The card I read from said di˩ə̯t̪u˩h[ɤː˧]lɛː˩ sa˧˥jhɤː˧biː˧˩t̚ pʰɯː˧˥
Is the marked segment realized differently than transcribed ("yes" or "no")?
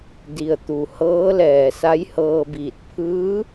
yes